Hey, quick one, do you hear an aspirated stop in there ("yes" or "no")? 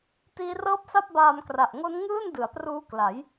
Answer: no